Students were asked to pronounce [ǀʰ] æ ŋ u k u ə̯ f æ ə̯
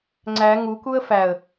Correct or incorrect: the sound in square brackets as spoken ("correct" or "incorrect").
incorrect